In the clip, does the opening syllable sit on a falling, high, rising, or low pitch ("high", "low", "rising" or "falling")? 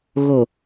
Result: low